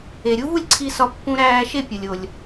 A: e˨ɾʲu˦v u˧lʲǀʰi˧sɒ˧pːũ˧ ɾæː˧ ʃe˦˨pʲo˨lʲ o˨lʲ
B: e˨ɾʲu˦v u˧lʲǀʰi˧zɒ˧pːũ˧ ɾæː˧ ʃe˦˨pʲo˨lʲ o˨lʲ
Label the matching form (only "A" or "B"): A